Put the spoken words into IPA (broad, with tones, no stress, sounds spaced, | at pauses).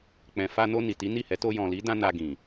k͡p ɛ̃˨ f a˧ n o˧ n i˨ t i˨˦ n i˦˨ h ɛ˨˦ t o˧ j ɔ̃˨ l i˨˦ d ã˧ n a˧ ɡ ĩ˨